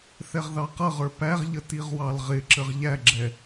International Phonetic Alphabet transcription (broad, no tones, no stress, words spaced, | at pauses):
θɛʁðɑqʌʁə˞ pæʁʎə tiʁwɑlʁɪǁəʁ ʎæɡ͡ǁɛ